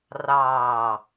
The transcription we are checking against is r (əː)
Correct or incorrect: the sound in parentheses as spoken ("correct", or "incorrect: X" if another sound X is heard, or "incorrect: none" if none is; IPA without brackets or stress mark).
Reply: incorrect: ɑː